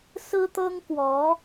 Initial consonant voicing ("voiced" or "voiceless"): voiceless